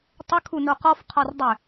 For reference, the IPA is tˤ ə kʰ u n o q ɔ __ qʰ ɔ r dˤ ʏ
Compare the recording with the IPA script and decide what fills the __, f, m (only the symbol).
f